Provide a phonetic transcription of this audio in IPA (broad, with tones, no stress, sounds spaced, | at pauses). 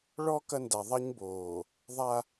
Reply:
ɭ ɔ˦ k ɐ˦ n d a˨ ðˤ ɐ˦ ɲ b oː˨ | ðˤ a˦